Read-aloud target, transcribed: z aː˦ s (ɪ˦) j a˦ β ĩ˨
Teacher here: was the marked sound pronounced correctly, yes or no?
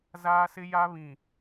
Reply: yes